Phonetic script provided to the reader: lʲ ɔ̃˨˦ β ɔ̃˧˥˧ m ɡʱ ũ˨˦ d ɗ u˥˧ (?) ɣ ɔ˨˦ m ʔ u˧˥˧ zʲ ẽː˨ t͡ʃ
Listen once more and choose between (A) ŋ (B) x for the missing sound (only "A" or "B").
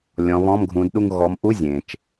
A